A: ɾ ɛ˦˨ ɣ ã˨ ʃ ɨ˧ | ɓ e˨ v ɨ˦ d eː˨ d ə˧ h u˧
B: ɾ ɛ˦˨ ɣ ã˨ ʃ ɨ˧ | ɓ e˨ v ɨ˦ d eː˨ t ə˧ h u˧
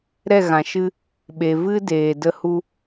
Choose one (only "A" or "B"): A